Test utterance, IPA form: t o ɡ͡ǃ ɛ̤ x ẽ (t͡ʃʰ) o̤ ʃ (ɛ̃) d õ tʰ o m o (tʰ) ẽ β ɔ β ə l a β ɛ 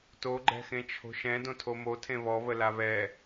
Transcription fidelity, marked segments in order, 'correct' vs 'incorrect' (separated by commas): correct, correct, correct